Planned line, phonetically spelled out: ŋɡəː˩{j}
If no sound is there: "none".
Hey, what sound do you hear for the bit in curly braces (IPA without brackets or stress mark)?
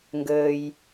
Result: j